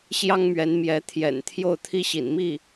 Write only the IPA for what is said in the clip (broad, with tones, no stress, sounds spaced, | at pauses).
ɕ j ɑ˥ ŋ m ɥ ɛ˧˥ n m j ɛ˧˥ t̪ʰ j ɛ̰˨˩ n t̪ʰ j o˥˩ ʊ̯ t̪ʰ i˥ ɕ ḭ˨˩ n m i˥˩